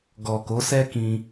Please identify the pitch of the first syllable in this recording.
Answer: low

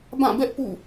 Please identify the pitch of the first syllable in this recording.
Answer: falling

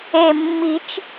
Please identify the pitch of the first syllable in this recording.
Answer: low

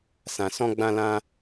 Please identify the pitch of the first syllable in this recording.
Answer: low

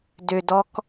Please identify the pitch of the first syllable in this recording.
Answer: low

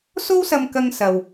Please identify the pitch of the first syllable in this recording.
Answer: high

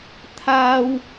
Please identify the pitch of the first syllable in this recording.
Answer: high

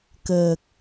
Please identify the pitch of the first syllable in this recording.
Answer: low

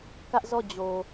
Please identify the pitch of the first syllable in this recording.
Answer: high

